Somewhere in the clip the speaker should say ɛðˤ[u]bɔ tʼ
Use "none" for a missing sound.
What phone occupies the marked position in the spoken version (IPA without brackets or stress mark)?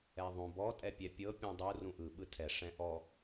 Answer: ũ